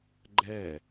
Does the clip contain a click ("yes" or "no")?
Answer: yes